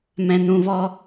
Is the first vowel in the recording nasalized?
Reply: yes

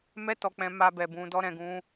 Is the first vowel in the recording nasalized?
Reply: no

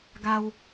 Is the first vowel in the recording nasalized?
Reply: no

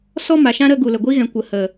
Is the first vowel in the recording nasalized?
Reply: no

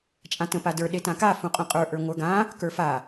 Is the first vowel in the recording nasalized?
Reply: yes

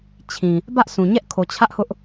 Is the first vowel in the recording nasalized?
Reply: yes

